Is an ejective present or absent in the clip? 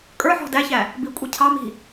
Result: present